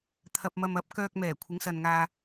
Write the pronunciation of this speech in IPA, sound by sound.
t̪ʰ ɐ˧ p̚ m ɐ˧ m ɐ˨˥ p̚ k œː˧ k̚ m ɛː˨˩ kʷʰ ɪ˨˥ ŋ s ɐ˨ n ŋ aː˧

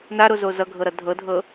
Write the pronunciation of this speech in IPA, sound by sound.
n a ɾ o z o z ʌ ɡʱ ɤ ɾ ʌ dʱ ɤ dʱ ɤ

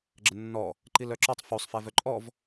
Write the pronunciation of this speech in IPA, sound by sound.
ɡ͡ǁ ə nː ɔ | ǃ i l œ ǁ ɔ tˤ f u sˤ f ɛ v œ ǃʼ ɔ v

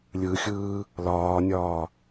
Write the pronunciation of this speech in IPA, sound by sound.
lʲ ɯ xʲ ɯː | l ɒː nʲ ɒː

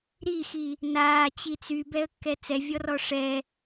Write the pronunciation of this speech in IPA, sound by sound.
ɾ i x i | n aː t͡ɕ i t͡s y b ɛ ə̯ kː ɛ t͡s ɛ vʲ ɔ r ɔ ʂ ɛ

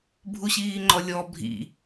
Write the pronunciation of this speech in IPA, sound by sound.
bʱ u ɕ iː ŋ͡ǃ ɔ lʲ ɔ bʱ ḭ

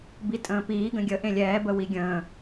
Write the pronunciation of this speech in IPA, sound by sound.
b i tʼ ə̃ː p iː ɡ ə̃ ɡʲ ə ʔ ẽ lʲ ɛː b ə w i ɡʲ ə̃ː

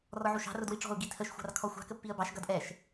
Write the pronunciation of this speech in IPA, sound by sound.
r ɔ ʕ u ʃ ɑ̤ r ʊ d w i ʈ͡ʂ ɔ̤ ʊ̯ ɡ i tʰ ə ʃ xʷ ɑ̤ r kʰ ɔ xʷ ɑ̤ k ə pː i ə̯ b ɑ ʃ ɡ ʌ d ʔ ɛ ʃ

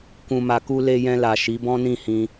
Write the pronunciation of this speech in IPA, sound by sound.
k ũ˧ m a˧ k u˦ l e˧ j ɛ̃˧ l a˨ ʃ i˨˦ b ɔ̃˦ n ĩ˦˨ h ĩ˧

